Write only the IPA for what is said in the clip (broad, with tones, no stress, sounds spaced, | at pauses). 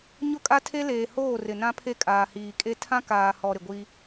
ɲ ʊ˦ kʼ a˦ tʰ e˦ l eː˨ h oː˦˨ r ɪ˨ n ã˦ pʰ e˦ kʼ aː˨ h iː˨ kʼ e˦ tʰ ã˦ k aː˨ h ɔ˨ ɾ ɪ˨ ɡʷ i˦